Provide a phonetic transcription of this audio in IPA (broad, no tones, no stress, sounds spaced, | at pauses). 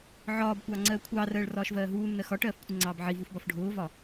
ʕ ɒː b kʷ ɑː ŋ͡ǀ ɜː kʷʰ ɑː r ɜː ɭ r ɒː ʃ v ɜː ɦ uː nː ɜ x ɒ ʈ ɜː f kʷʰ ɪ ŋ͡ǀ ɑː b ʕ i v u f b ɒ f ɖʱ ʊː v ɒ